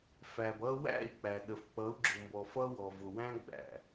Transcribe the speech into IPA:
f æ˨ b ʌ˦ w æ̰˦˨ i̯ k͡p æ˨ ɗ ə˨ f k͡p ʌ˨˦ u̯ ɡ͡ǁ ʊ˨ m b ɔ˨ f ʌ˦ w ɔ˨ v ʊ˨ w æ̃˦ ɡ͡b æ̰˨

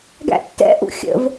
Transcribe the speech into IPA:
ɡ æ̰ tː ɛ̰ ʔ ṵ xʲ ə̰ v

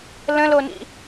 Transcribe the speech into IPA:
l ə̃ l o n ḭ

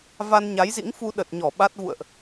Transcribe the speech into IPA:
v a˧ n ɲ a˨˦ j z ḭ˧˥ ŋ f u˧ ɗ ə˨˩ t̚ ɲ ɔ˧˩ ɓ a˦˥ t̚ v ṵ˧˨ ə̯ ʔ

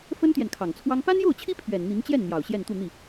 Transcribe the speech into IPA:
f ə˥ n t̪ j ɛ˨ n kʰ ɑ˨˩ ŋ t͡sʰ w ɑ˥ ŋ p a˥ n j o˥˩ ʊ̯ t͡ɕʰ i˥ pʰ ɥ ɛ˨˩ n n̪ i˧˥ ŋ t͡ɕ j ɛ˥˩ n n̪ j ɑ˨˩ ʊ̯ ɕ j ɛ˥˧ n t̪ u˥˧ n̪ i˥˩

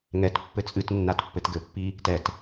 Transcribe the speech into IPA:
ŋ ɛ t pː ɘ t͡sʼ ɨ t nː a t pː ɘ t ɡ ɘ pː i | t ɛ t

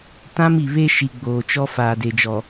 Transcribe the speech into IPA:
t ã˦ m i˨ β e˦ ʃ i˨ ɡ͡b oː˨ t͡ʃ ɔ˦ f aː˨ d e˨ d͡ʒ ɔ˨

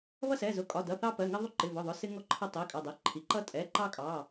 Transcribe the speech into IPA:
β ʌ˦ s ɛ˩˧˩ z ʊ˩˧˩ kʼ ɒ˩˧˩ d ʌ˩˧˩ θ ɑ˦ p ɜ˩˧˩ ŋ ɪ˦ ðˤ ʊ˦ ǃ ɪ˩˧˩ v ʊ˩˧˩ ðˤ ʊ˩˧˩ s ɪ˦ ŋ ɔ˦ ǃʰ ʌ˦ tˤ i˩˧˩ kʼ ʌ˩˧˩ dˤ ɛ˩˧˩ ǃʰ i˩˧˩ ǃ ʌ˦ tʼ ɛ˩˧˩ ǃ ɑ˦ kʼ ɑ˩˧˩

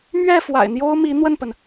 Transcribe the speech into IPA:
m ɥ ɛ˥˩ f w a̰˨˩ ɪ̯ n̪ j o˥ ʊ̯ m i˧˥ n̪ w ə˥˩ n p ə˩ n

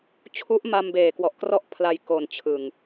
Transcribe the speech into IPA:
t͡ɕʰ u˦˥ ʔ m a˧ m b eː˨˩ k w ɔ˨˩ ʔ k r ɔ˥˩ ʔ pʰ l a˧ j k o˨˩ n t͡ɕʰ ɯ˨˩ ŋ

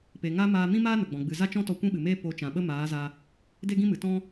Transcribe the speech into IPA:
p e˨ ŋ a˧ m aː˧ m ĩ˦ m aː˦ n ə˨ ɡ͡b ɔ̃˨ ɡ͡b ɨ˨ z a˦ t͡ʃ ɔ̃˦ t ɔ˧ kʷ ĩ˦ ɓ ɨ˨ m eː˦ p o˨˦ t͡ʃ ã˨ ɓ ə˦ m aː˨˦ z a˧ | d e˦ ɡ ĩ˦ m ɨ˨ t ɔ̃˦

